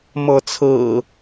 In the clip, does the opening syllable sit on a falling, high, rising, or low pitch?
rising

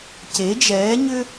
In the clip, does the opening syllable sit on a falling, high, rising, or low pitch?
rising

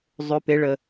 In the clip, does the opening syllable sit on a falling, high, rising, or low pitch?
rising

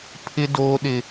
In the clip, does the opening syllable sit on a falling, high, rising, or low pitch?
high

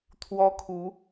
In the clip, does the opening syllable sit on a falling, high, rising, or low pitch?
high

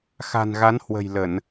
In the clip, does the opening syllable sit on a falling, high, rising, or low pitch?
low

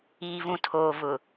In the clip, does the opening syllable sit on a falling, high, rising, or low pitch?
low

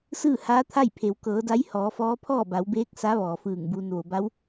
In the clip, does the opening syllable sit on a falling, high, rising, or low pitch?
falling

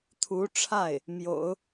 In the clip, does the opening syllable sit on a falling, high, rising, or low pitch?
rising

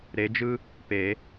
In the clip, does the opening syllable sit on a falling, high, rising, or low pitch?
rising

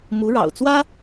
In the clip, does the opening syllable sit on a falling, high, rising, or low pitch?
rising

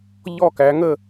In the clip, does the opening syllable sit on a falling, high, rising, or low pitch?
falling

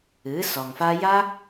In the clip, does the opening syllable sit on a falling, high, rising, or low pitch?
rising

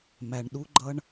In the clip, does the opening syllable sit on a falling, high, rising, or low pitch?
low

